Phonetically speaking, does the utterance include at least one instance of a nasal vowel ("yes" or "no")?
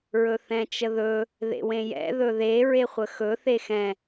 yes